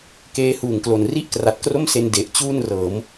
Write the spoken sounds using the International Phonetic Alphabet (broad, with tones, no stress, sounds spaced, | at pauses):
k eː˦˥ h uː˨˩ ŋ k l o˨˩ n r i˥˩ ʔ k r a˨˩ t̚ k r o˥˩ m s e˧ n d e˨˩ ʔ t͡ɕ uː˥˩ n r ɤː˩˦ m